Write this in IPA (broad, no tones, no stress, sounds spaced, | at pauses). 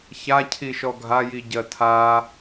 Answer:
ç a cʰ i ʃ ɔ ɡʱ a j i ɟ ɜ tʰ a